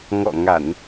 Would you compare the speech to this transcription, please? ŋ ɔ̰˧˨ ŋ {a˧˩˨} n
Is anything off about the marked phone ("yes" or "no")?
no